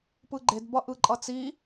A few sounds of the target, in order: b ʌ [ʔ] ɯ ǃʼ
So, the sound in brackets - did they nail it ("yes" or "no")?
yes